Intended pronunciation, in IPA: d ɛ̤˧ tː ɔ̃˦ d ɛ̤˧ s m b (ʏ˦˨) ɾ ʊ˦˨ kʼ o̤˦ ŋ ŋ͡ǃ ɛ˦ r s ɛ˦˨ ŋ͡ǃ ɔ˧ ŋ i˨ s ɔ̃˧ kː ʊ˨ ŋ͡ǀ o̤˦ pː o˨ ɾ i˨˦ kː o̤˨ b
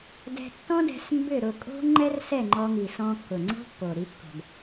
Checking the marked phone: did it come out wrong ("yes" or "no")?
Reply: no